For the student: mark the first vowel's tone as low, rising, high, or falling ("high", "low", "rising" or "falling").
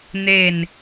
falling